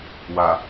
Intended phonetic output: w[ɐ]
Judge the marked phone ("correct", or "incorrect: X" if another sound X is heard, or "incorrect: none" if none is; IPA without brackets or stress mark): incorrect: a